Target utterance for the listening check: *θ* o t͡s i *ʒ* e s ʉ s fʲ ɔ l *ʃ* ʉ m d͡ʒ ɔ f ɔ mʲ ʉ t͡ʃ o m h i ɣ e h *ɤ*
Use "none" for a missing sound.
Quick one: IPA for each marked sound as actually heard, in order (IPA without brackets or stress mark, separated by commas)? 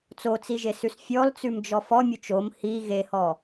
t͡s, ʒ, t͡s, ɔ